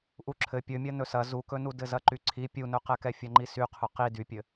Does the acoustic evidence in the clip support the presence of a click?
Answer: yes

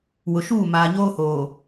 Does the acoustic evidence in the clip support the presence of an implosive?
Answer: no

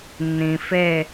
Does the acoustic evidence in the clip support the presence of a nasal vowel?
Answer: yes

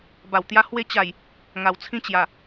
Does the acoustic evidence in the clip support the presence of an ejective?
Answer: no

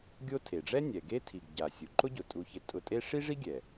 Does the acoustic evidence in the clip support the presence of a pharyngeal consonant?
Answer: no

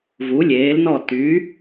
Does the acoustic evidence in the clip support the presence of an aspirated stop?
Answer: no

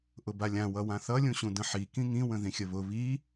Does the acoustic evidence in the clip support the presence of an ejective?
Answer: no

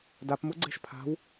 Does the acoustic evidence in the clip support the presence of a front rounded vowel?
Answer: no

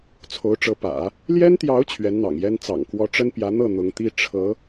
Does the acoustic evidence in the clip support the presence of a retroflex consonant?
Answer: yes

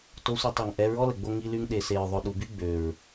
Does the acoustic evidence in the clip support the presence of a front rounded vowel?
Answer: yes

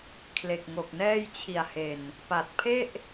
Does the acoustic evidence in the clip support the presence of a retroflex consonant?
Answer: no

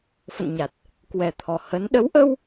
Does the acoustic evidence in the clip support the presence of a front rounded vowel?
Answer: no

